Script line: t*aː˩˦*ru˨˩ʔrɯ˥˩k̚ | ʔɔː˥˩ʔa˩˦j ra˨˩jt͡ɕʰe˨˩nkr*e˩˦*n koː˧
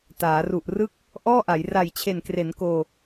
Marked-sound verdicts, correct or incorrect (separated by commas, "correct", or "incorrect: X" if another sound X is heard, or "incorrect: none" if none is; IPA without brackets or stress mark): correct, correct